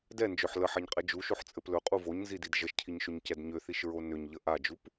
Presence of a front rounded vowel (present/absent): present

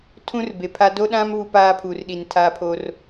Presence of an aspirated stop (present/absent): present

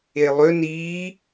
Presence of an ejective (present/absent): absent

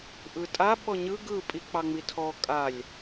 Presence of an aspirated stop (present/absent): present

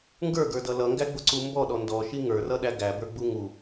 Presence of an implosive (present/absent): present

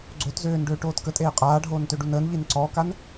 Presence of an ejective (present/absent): present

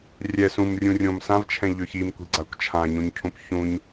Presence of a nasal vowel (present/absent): present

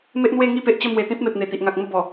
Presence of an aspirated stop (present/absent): absent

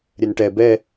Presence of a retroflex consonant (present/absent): present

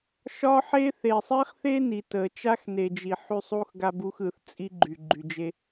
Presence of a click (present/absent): present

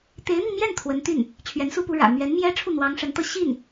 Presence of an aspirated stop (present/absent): present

